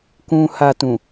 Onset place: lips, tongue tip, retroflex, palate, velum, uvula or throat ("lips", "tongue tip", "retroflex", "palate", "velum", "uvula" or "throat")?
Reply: velum